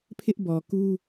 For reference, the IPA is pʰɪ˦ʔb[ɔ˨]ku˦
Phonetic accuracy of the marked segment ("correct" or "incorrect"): correct